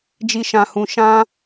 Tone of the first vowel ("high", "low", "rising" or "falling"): low